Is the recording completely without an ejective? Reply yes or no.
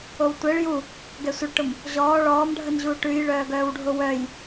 yes